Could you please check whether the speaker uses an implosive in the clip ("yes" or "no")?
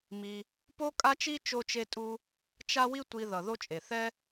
no